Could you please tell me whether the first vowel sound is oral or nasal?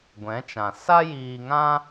nasal